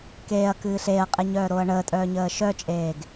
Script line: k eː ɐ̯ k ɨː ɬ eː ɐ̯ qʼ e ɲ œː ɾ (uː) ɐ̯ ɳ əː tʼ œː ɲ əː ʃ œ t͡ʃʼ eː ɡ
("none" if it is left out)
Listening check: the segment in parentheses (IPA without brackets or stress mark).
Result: oː